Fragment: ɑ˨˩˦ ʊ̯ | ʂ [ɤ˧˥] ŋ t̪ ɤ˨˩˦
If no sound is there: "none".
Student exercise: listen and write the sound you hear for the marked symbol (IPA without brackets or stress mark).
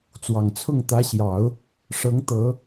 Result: ɤ˧˥